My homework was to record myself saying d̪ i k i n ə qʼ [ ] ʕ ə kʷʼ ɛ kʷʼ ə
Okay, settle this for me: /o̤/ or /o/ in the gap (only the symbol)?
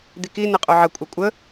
o